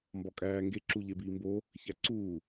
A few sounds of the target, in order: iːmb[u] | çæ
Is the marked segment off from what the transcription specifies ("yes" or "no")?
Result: yes